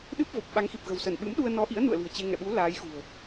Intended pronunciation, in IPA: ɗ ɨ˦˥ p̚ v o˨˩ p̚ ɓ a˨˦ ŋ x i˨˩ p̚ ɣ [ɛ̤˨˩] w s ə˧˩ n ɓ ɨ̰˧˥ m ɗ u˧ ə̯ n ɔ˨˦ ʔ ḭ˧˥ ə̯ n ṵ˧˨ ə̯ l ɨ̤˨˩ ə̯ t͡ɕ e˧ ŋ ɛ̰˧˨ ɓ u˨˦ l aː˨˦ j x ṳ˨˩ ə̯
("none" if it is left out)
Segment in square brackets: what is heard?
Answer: ə̤˨˩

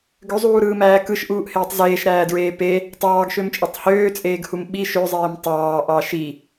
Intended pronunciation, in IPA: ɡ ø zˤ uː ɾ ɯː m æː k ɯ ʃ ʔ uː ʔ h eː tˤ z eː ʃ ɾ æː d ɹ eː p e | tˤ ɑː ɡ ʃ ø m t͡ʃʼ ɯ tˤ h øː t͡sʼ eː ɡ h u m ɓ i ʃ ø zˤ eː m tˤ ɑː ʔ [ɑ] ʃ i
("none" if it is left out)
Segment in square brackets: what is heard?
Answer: ɑ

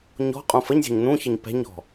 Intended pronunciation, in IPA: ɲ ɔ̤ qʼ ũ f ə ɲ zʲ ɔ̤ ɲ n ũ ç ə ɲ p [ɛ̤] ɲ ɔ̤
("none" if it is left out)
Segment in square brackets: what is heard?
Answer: ɛ̤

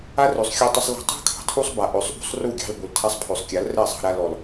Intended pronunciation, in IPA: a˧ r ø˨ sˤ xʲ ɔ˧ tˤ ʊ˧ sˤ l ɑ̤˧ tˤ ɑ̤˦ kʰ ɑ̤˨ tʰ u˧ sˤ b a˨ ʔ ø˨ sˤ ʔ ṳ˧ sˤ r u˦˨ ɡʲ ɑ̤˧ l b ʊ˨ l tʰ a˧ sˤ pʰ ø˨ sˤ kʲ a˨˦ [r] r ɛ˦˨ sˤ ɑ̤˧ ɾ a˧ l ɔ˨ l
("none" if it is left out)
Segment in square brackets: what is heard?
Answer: l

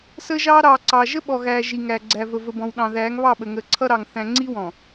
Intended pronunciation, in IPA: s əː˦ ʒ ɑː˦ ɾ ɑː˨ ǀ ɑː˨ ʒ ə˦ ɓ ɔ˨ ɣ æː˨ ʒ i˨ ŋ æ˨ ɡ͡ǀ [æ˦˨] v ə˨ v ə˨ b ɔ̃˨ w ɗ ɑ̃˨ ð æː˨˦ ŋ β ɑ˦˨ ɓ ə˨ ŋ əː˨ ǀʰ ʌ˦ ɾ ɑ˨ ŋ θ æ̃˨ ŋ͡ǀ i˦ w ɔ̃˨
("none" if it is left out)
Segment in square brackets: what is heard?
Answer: æ˨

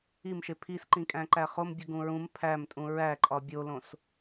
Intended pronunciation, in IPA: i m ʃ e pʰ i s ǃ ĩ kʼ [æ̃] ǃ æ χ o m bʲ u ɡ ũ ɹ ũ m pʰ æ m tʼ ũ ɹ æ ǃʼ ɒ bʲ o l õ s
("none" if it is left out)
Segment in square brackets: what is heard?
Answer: æ̃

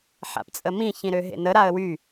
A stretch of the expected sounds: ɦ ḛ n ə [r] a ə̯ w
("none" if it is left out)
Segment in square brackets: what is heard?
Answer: ɾ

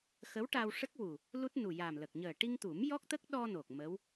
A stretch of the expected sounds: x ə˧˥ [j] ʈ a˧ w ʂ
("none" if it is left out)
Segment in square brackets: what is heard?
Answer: w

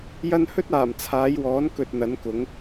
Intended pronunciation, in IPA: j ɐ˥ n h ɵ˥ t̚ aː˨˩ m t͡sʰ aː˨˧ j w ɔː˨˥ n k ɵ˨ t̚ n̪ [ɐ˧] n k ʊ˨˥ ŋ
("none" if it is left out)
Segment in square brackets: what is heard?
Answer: ɐ˨˥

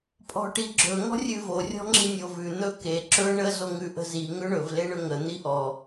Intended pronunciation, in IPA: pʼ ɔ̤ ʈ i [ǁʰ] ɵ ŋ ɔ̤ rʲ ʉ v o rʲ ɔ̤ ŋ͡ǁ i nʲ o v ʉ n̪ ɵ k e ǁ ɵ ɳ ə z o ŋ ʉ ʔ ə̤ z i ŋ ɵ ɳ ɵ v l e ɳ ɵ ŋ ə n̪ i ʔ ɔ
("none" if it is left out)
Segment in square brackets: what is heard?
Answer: ɡ͡ǁ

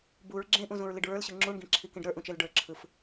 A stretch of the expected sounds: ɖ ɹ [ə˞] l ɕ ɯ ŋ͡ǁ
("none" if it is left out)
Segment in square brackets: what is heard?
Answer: ə˞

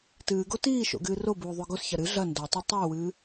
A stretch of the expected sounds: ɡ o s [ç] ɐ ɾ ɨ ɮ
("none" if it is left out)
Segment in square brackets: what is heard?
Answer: ç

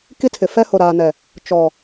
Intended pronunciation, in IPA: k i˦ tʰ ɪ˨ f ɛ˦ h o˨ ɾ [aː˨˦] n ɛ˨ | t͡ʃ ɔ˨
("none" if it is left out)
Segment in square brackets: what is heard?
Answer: aː˨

